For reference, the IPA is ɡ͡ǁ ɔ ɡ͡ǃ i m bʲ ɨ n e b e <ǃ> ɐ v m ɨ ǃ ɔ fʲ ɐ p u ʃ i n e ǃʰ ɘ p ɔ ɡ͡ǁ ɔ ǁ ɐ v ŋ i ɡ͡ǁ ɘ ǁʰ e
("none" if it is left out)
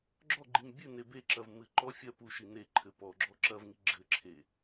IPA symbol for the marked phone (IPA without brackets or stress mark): ǁ